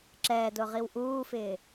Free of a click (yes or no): no